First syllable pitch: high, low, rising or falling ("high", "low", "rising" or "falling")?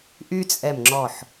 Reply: high